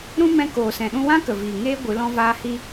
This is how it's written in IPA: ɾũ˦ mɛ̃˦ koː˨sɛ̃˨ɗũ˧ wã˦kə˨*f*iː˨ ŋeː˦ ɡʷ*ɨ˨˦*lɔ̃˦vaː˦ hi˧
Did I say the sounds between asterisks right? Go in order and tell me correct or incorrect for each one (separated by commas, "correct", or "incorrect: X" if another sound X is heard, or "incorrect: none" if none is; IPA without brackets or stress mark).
incorrect: v, correct